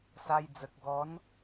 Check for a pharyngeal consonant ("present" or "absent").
absent